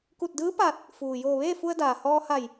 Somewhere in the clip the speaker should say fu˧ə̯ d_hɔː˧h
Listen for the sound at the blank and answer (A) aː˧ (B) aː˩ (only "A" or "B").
B